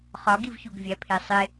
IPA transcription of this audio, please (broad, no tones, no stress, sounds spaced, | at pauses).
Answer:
χ ɒ ɡ i v ç u ɡ vʲ æ pʰ e sˤ e